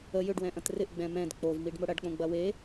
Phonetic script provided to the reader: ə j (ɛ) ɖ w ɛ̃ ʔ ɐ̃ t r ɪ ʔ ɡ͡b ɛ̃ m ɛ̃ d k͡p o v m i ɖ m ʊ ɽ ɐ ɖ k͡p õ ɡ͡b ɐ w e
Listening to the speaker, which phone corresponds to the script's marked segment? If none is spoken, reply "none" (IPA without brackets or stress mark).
ʏ